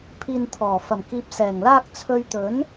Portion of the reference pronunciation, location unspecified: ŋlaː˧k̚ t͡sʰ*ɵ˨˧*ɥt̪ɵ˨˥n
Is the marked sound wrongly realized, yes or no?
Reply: no